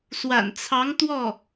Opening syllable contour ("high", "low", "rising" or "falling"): low